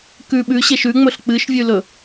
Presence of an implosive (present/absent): present